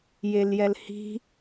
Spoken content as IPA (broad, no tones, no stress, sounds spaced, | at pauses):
j e l j ɛ l h i̤